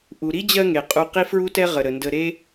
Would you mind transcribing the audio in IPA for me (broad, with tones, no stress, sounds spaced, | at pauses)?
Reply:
ʔ u˩ ɾ i˥ d͡ʑ ɜ˦ ŋ e˩ qʼ u˨ q i˥ f ɹ u˥ t ɛ˥ ʁ ə˩ ɾ ə˩ n d ə˨ ɾ e˦